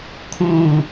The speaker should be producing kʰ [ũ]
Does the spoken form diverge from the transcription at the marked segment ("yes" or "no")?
yes